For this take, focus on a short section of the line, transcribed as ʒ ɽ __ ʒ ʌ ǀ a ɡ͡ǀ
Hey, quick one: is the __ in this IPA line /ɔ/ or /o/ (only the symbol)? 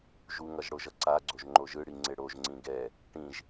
o